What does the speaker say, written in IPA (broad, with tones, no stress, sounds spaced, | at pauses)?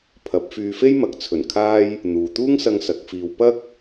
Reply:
pʰ ɐ˨˥ p̚ f yː˧ f e˥ j m ɐ˨ k̚ t͡sʰ ɵ˨˩ n kʰ aː˧ j | n̪ uː˨ t̪ uː˥ ŋ s ɐ˧ ŋ s ɐ˨˥ k̚ f iː˧ w p ɐ˥ k̚